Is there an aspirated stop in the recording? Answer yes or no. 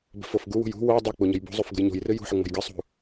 no